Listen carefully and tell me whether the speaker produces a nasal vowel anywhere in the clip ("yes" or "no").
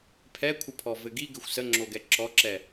no